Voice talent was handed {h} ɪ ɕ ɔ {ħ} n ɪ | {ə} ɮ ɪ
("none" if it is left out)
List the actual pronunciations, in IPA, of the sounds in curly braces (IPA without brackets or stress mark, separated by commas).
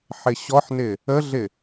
ħ, ħ, ə